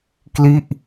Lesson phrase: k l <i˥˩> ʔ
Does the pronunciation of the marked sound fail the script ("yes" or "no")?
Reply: no